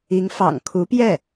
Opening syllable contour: rising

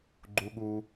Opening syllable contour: low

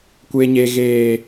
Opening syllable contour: high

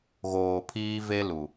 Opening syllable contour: low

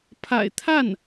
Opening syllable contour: low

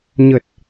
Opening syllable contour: low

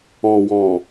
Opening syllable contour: low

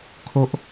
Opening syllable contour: high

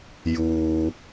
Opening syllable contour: low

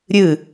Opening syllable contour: falling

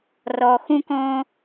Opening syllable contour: low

